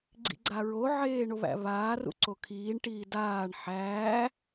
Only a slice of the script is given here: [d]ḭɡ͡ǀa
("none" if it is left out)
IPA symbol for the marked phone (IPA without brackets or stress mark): ɡ͡ǀ